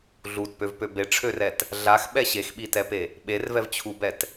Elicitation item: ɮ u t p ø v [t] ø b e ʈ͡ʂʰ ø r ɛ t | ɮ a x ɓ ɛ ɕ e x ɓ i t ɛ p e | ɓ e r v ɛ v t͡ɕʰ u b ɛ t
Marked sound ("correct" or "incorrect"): incorrect